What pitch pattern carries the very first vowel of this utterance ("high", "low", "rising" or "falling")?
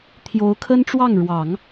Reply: rising